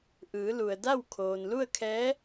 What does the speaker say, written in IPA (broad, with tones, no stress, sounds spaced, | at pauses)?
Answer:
ʔ ɯː˩˧ l u˩ ə̯ d a˥˨ w kʰ oː˩ n l u˥˨ ə̯ kʰ ɛː˧˥